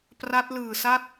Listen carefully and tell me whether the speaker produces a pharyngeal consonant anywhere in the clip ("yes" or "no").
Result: no